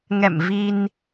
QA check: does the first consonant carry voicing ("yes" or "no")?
yes